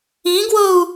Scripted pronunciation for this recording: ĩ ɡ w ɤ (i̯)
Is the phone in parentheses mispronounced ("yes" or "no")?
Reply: yes